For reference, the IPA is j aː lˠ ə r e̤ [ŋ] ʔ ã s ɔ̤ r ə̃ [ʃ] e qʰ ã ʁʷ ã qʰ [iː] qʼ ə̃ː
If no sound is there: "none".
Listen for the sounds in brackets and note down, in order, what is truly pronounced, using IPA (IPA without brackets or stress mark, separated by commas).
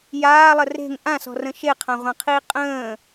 ŋ, ʃ, iː